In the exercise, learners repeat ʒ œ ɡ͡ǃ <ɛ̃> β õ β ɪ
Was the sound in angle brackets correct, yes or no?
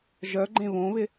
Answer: no